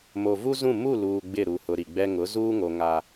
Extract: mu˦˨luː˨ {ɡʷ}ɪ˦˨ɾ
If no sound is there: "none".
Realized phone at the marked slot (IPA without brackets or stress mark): ɡ͡b